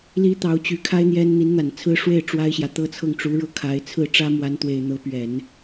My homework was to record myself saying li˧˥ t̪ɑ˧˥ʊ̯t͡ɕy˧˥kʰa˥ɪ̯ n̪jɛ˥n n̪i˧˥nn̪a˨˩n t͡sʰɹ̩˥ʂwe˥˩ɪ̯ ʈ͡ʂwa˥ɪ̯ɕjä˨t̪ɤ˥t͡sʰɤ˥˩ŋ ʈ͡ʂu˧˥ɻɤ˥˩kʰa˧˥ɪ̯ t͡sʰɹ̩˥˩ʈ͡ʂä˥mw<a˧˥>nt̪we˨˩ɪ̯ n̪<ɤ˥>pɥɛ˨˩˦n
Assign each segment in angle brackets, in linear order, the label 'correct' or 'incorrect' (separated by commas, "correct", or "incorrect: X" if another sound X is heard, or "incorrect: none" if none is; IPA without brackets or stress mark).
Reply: correct, incorrect: ɤ˧˥